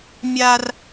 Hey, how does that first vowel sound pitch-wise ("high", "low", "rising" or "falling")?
high